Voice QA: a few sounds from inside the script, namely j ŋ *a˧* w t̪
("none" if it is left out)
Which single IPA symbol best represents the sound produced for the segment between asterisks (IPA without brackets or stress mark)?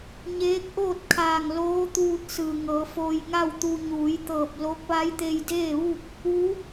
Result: a˥˨